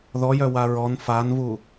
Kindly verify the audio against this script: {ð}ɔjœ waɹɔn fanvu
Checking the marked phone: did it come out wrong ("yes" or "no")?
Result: no